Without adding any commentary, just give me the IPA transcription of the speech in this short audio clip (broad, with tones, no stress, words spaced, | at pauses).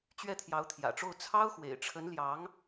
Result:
t͡ɕɥɛ˥˩t̪ʰjɑ˧˥ʊ̯t̪ʰjä̰˨˩ʈ͡ʂo˥˩ʊ̯ t͡sʰɑ˥ʊ̯xwḛ˨˩ɪ̯ʈ͡ʂʰə˧˥n ljɑ˧˥ŋ